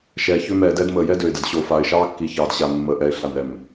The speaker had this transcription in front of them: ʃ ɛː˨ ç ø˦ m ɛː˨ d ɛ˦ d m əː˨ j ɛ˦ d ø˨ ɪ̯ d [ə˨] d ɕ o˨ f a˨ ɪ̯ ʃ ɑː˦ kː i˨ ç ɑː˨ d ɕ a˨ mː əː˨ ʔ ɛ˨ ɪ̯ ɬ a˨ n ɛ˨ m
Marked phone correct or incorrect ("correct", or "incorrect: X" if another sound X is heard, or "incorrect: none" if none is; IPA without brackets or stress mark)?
correct